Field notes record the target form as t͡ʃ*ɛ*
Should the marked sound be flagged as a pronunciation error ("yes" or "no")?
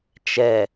no